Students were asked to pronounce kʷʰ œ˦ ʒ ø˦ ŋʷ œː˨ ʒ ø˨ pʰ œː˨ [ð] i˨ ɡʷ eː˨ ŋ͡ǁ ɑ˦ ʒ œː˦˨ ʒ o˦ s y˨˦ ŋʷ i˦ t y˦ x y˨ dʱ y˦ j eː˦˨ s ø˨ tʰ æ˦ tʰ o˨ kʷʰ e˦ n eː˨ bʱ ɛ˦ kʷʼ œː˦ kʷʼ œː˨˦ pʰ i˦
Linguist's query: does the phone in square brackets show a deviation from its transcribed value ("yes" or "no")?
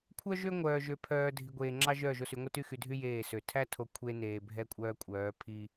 yes